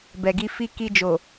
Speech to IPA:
b ɛ˨ ɡ i˧ f i˧ k i˧ d͡ʒ o˨

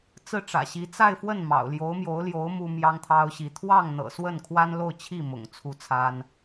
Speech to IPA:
t͡s ɹ̩˥˩ ʈ͡ʂ ä̰˨˩ ɕ i˧˥ t͡s a˥˧ ɪ̯ f w ə˥˩ n m ɑ̰˨˩ ʊ̯ l j o˧˥ ʊ̯ m j o˧˥ ʊ̯ l j o˧˥ ʊ̯ m u˥ m j ɑ˥ ŋ t̪ʰ ɑ˥ ʊ̯ ɕ i˧˥ t̪ʰ w ɑ˥˩ ŋ n̪ ɤ̰˨˩ s w ə˥˩ n kʰ w a˥ n l o˥˧ ʊ̯ t͡ɕʰ i˥˩ m ʊ̰˨˩ ŋ t͡sʰ u˥˩ t͡sʰ a˥ n

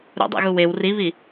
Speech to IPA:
ɾ ṵ dˤ ɛ̰ ɣ u w e w r i β i

